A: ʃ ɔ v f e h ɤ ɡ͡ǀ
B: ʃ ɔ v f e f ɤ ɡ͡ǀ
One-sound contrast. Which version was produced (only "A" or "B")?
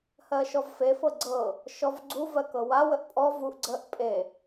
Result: B